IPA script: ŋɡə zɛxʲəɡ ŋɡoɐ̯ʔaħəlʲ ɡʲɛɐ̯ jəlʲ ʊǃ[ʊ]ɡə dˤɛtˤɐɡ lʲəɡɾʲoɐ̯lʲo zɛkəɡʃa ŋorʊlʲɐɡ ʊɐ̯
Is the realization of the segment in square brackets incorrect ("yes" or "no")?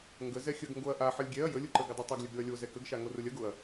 yes